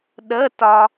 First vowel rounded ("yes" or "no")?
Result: no